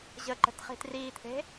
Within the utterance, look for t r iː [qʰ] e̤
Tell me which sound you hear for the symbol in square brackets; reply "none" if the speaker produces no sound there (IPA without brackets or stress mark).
t̪ʰ